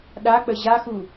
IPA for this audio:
ɗ a k͡p ə ʑ a x u

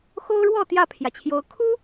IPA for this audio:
x o˦ ʊ̯ ɻ w ɔ˥˨ t̪ j ä˥˨ pʰ j ä˩ t͡ɕʰ j o˨˦ ʊ̯ kʰ u˦

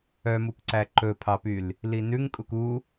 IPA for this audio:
œ m u p ǀ æ ǃ ɵ pʰ ɑ p y l | l i n ʉ ŋ kʼ u k u

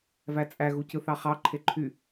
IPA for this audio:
v æ t͡sʼ æ ɣ u c ɯ θ ɑ χ ɑ ǃʰ e ǃʰ y

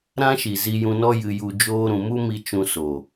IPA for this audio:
ɾ ã˦ ʃ i˨ z i˧ j ũ˧ n ɔ˦ j ɨ˧ j u˧ d͡ʒ oː˦ ɾ ũ˧ m u˦ m i˧ t͡ʃ ũ˧ s o˨

